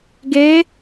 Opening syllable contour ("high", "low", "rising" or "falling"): rising